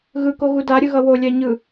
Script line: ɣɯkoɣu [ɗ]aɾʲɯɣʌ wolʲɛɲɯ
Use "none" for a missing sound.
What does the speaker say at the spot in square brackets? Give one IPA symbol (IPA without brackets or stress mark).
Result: d